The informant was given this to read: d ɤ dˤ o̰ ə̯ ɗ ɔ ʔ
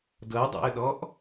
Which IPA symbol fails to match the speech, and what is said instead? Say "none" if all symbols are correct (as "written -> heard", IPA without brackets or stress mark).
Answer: none